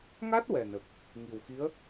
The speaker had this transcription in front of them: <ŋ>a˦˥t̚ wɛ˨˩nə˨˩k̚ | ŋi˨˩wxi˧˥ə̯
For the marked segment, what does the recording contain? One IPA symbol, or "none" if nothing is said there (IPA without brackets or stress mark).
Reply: ŋ